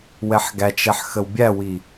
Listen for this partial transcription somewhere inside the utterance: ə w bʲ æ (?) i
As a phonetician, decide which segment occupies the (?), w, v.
w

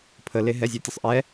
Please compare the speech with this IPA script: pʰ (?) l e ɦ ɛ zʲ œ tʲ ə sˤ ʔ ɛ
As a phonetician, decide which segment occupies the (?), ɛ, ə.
ə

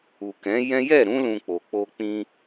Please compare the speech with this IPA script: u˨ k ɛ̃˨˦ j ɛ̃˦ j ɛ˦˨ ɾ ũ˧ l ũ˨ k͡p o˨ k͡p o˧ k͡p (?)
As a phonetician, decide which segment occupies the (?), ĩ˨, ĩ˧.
ĩ˧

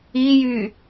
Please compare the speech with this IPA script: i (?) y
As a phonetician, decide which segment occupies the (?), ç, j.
j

